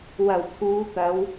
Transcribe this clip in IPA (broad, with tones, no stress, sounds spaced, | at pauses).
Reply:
w ɐ˨˩ w pʰ uː˨˧ t̪ ɐ˨˧ w